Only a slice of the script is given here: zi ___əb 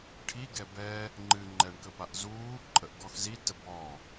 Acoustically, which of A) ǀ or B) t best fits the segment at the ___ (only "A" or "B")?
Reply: B